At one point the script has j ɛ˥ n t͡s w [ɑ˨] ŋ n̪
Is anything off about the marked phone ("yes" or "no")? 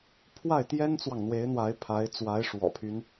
no